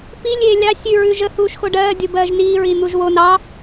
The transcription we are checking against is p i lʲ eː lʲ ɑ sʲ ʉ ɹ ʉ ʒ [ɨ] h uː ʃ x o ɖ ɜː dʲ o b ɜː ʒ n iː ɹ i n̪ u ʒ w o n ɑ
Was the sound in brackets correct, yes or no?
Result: no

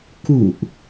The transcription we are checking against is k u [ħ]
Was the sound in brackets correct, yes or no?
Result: no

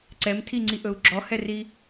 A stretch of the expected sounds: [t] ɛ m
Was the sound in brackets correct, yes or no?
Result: no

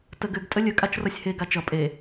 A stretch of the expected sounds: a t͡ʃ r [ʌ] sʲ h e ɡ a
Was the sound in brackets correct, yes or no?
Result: yes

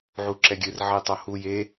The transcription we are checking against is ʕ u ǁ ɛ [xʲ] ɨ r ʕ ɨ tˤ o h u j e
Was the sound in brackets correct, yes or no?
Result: no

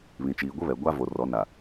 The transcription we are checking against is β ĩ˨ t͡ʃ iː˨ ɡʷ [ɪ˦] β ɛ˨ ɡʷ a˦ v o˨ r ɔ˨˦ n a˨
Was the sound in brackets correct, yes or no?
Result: yes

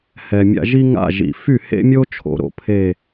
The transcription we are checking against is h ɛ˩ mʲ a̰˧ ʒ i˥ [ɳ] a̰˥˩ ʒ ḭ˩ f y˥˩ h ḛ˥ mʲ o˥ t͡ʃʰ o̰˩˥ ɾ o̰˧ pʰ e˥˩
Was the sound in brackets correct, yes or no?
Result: no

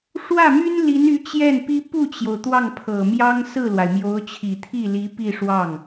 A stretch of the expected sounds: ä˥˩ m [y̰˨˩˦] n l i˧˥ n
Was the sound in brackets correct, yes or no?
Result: no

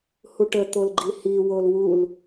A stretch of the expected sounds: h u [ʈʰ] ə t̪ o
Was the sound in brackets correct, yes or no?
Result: no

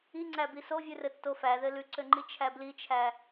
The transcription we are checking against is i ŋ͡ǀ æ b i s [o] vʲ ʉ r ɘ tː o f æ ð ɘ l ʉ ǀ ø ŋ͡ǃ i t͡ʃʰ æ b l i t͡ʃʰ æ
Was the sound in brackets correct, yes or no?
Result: yes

